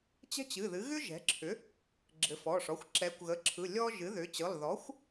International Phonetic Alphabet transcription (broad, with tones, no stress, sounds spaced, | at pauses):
t͡ɕ ɛ̤˥ t͡ɕ ɨ˩˧˩ ð ɨ˩˥ ɣ ʏ˥ ʒ ɛ̤˩˥ ǁʰ ʏ˩˥ | ɡ͡ǁ ɘ˩˥ f ɔ˩˧˩ ʂ ɔ˩˧˩ xʷ ǁ ɛ˩˥ kʷ ɣ ə˩˧˩ ǁʰ ɯ˩˧˩ lʲ ɔ˥ ʒ ɨ˩˥ ð ʏ˩˥ t͡ɕ ɯ˩˧˩ lˠ ð ɔ˩˥ xʷ